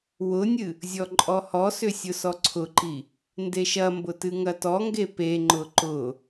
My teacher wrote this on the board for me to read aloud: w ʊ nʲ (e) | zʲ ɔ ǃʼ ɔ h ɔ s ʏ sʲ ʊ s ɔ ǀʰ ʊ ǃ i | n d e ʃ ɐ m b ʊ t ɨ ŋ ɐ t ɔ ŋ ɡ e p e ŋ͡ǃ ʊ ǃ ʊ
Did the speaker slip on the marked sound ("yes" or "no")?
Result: yes